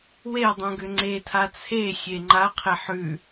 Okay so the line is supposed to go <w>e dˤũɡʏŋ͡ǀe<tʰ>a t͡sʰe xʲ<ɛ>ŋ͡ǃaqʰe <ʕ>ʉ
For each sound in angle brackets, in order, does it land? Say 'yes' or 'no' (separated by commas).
yes, yes, no, no